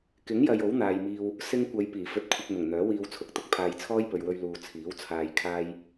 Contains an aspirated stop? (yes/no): yes